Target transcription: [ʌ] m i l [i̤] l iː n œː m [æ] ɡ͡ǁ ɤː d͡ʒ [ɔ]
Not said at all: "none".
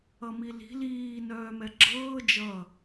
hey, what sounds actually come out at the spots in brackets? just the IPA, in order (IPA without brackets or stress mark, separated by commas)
ʌ, i̤, ɛ, ʌ